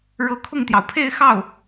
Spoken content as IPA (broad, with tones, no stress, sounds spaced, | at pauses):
ɻ ɤ˧˥ kʰ ʊ˥˩ ŋ t̪ j ɑ˩ ʊ̯ pʰ e˥˧ ɪ̯ x ɑ˥˩ ʊ̯